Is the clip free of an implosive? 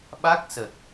no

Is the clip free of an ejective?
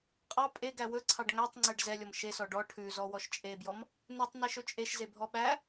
no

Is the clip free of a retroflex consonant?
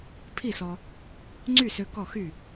yes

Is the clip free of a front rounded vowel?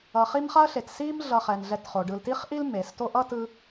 yes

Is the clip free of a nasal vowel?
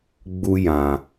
no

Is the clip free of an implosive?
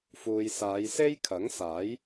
yes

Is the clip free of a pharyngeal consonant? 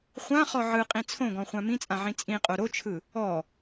no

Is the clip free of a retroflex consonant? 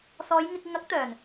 yes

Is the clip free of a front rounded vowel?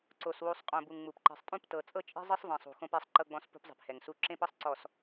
yes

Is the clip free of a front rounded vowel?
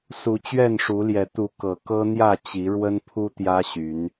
no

